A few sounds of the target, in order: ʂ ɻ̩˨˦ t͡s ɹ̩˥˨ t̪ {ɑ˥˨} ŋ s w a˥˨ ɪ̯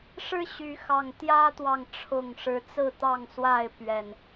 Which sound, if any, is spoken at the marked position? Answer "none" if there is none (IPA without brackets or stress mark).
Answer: ɑ˥˨